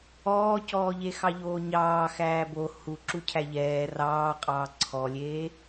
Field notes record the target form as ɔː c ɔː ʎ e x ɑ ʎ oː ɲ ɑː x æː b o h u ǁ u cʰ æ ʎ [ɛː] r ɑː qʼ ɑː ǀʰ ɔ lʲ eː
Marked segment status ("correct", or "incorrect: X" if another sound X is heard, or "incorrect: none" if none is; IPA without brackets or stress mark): correct